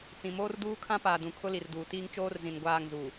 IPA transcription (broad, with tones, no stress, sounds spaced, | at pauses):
t͡s ĩ˨ m oː˦ r d uː˦ kʰ ã˦ p aː˨ d ũ˨ kʰ ʊ˦ l i˨ r d uː˨ t iː˦ ŋ t͡ʃ oː˦ r z ĩ˨ n ɡʷ aː˦˨ ŋ z u˨